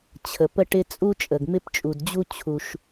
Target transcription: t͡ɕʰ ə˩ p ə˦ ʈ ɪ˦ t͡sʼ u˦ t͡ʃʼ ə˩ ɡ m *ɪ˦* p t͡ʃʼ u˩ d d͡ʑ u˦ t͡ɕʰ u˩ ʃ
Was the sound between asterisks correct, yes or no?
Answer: yes